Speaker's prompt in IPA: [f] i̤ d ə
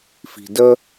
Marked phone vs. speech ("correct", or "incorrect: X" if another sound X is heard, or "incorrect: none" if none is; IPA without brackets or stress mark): correct